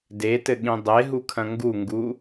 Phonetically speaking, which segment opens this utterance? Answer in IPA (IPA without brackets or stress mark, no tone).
d